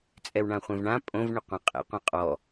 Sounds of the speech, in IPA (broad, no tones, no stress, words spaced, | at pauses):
t͡sʼɛwɳãχʷẽvɳã pʼõv ɳɤqʷãqʼḛ qʷãqʼɔ